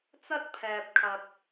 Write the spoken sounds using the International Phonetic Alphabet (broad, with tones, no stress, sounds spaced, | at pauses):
t͡s ɐ˥ t̚ pʰ ɛː˨ p̚ kʰ ɐ˨ t̚